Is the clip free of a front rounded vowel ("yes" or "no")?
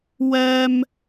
yes